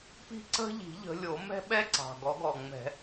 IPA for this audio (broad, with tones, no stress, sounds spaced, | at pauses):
p i̤˥˨ ǀ ə̤˦ ʎ i̤˨˩˦ ʎ ə̤˨˦ lʲ o˨˩˦ m ɛ̤˦ ɓ ɛ˦ ǀ ɑ̤˨˩ ɡ ɔ˨˩˦ ɡ ɔ˨˩ ŋ͡m ɛ̤˨˩˦